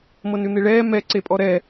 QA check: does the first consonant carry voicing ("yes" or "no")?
yes